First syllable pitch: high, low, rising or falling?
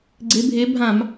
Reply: rising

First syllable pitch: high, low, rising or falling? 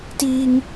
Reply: high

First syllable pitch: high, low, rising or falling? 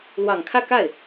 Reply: low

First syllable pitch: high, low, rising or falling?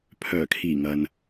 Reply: low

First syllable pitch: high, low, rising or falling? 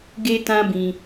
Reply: high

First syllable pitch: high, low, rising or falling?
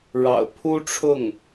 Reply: low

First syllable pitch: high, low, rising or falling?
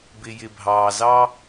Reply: low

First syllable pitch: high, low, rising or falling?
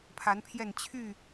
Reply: rising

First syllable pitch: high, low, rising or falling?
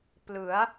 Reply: rising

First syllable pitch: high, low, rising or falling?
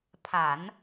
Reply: low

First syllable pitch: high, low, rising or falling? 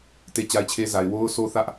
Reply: high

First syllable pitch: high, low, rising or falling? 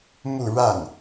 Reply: falling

